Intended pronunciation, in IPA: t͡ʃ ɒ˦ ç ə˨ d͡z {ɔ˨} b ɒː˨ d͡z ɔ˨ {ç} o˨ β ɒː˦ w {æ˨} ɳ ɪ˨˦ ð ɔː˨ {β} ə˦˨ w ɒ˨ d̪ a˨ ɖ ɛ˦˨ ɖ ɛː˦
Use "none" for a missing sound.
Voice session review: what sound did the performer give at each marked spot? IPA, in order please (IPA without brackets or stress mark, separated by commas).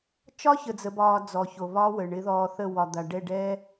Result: ə˨, ç, ə˨, θ